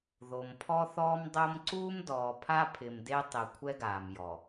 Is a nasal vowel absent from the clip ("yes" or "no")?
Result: yes